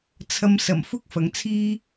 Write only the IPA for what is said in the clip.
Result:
t͡sʰ ɐ˨ m s ɐ˨˩ m f ʊ˥ k̚ f ɐ˨ ŋ t͡sʰ iː˥

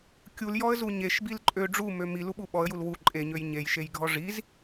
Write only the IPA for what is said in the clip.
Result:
kʲ u l j ɔ ə̯ z u ɲ e ʃ b i l ǃʼ ø ɖ͡ʐ u m ø m i l u ɓ u ɓ ɔ ə̯ j u l w u ǃʼ e ɲ ø j ɲ e j ʃ e j ɡʱ ɔ ʐ i z

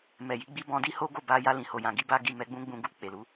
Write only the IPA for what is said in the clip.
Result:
m ɛ˨ j i˨˦ ɡ͡b i˦ b ɔ̃˧ d i˦ h o˦ ɡ o˦˨ b a˧ j a˧ l ĩ˨ h o˨ j ã˨ ɡ i˧ b a˦ ɡ i˦˨ m ɛ˧ ɡ͡b ũ˦ ɡ͡b ũ˧ ɡ u˧ k͡p e˨ l u˨˦

